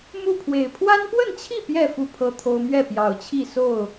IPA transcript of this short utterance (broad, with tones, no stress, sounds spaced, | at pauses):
m u˥˨ pʰ w e˨˩ ɪ̯ pʰ w a˦ n p w ə˥˨ n t͡ɕʰ i˥˨ p j ɛ˥˨ f u˥˨ pʰ ɤ˦ t̪ʰ o˦ ʊ̯ m ɥ ɛ˥˨ p j ɑ˨˩ ʊ̯ t͡ɕʰ i˥˨ s o˥˨ ʊ̯